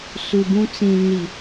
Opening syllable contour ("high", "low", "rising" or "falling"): low